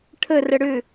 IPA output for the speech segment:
ʈʰə rəɽʏ

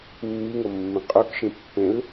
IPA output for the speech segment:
mːiŋɤmːĩ qʼokʃĩ pːẽl

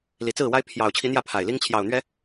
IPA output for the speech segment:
li˨˩t͡sɹ̩˥˨wa˦ɪ̯ pʰjɑ˨˩ʊ̯t͡ɕʰi˨˦ n̪jä˥˨pʰa˨˩ɪ̯li˦ŋ t͡ɕʰjɑ˨˩ʊ̯n̪ɥɛ˨˦

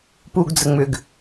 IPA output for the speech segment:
puɡd͡zə ŋ͡mʏɡ

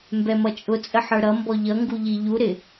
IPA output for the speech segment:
mbɛmʌt͡ʃʼʊ t͡sʼəħə˞ɾʌ mbɔʎʌ ŋɡuʎiʎu ɾɪ

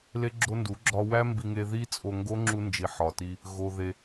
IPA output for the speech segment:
le˦ɡ͡ǁo˦ndu˨˦ ɡ͡ǁɒ˧wæ˦mbi˧ŋe˧ ði˦t͡sʼo˧ŋɡo˦ ŋ͡ǁu˧nd͡ʒi˨ ħɒ˨ti˧ | ɣo˧ðe˧

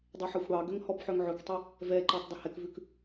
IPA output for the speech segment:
dˤeħɑxʷɽɑɡøŋ hɔbħœŋʕɵktˤɛ | vɛǃɔtˤ dˤehɛkvʉk

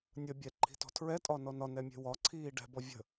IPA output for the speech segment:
nʲə bʲɛǃʰi̤tɔ̤ tʰɹɛtʼɒnɔ nɒnɛmʲe̤ wɒǀʰiː ɖɛ̤bɔ vʲə̤

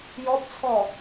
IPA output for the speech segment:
jɔbt͡sʰɔ

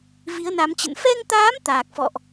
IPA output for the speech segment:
vi˨˦ə̯na˨˦mt͡ɕə̰˧˨n fɛ˧ŋt̪aː˨˦m t̪aː˨˩k̚fɔ̰˧˨ʔ

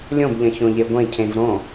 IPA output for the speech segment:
lʲõbʎɐ̃ çõʎeɡʷẽcʰẽv ɾõ

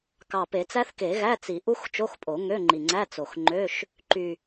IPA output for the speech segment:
kɑ˨˩pe˨˩˦t͡sæ˦˥θke˨˩˦ ɣæ˧˥˧t͡si˨˩˦ ʔu˦˥xt͡ʃo˧˥˧xpʼo˨˩˦ ŋø˧˥˧ŋ͡ǃi˨˩ŋ͡ǀæ˧˥˧ t͡so˨˩xŋ͡ǃø˧˥˧ʃ | ǃy˨˩

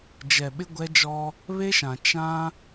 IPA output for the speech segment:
d͡ʒɛ˨ɓɪ˦ɡʷɛ˦d͡ʒɔ˦ | βe˦ʃã˨ t͡ʃã˦

